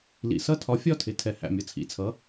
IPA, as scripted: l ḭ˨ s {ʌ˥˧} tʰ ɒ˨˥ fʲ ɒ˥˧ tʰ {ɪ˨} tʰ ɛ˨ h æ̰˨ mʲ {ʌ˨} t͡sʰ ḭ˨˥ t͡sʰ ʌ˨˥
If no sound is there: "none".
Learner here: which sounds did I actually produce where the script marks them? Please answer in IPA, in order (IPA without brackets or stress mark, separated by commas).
ʌ˥˧, ɪ˨, ʌ˨